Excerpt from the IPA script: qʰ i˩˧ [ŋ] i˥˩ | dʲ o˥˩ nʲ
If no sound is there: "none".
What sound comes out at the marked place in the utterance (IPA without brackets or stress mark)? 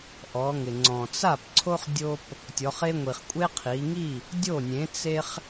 ŋ